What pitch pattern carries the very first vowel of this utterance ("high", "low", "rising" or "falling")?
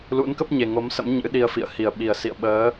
rising